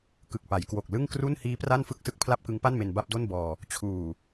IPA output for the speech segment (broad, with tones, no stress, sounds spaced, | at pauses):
k ɯ˨˩ k̚ p a˩˦ j k w o˨˩ k̚ l ɯ˥˩ ŋ k r u˥˩ n h iː˦˥ p r a˥˩ n f ɯ˥˩ k̚ s ɯ˦˥ k̚ pʰ l a˥˩ p̚ k ɯ˦˥ ŋ p a˥˩ n m e˧ n b a˥˩ p̚ d o˥˩ n b ɔː˧ | t͡ɕʰ uː˨˩